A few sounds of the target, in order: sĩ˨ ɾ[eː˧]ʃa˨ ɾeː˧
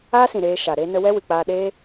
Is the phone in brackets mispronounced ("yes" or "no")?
no